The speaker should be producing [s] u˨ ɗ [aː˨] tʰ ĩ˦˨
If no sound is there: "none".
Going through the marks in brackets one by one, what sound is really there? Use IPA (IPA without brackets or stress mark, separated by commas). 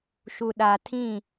ʃ, aː˨